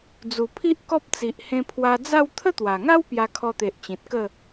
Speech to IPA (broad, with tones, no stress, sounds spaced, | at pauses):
d͡z u˨˩ pʰ i˦ ʔ k ɔ˦ p̚ t͡s i˨ ʔ h ẽ˧ pʰ w a˧ d͡z a˥˧ w t̪ʰ ə˦ t̪ w a˨˩ ŋ a˦ w p j a˧ kʰ ɔ˧ t̪ e˨ ʔ t͡ɕ ĩ˨ t̚ k ə˥˧